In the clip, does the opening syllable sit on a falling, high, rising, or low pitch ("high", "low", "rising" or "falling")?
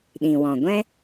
low